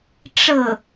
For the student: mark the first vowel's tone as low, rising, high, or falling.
falling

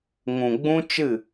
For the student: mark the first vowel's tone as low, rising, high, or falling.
low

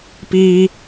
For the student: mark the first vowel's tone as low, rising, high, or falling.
low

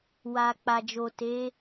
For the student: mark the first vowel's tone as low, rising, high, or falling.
low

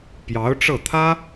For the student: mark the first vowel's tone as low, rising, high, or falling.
rising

